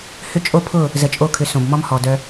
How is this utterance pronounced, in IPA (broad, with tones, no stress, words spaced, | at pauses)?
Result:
hʏ˦ t͡ʃʼo˦pʰʊ˦˨ | zə˧t͡ʃʼo˦˨kʰʏ˧ sõ˨bmɔ˦mhɔ˨dœ˧